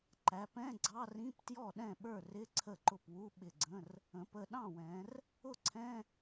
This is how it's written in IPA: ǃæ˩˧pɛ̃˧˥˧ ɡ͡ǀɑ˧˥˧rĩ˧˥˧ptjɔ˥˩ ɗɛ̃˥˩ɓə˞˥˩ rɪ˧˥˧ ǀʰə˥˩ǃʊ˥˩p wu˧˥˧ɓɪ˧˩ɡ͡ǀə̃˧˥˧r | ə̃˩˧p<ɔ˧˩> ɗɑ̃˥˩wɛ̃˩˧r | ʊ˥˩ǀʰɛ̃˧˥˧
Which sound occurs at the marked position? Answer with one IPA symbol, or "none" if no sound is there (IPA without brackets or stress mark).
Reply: ə˧˩